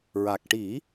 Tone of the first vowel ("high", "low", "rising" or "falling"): low